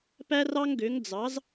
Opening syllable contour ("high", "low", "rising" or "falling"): high